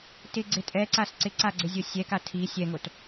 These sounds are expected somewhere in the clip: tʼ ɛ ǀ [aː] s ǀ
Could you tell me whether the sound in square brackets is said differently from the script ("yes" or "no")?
yes